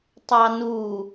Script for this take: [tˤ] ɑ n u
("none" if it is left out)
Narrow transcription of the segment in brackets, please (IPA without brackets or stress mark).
tˤ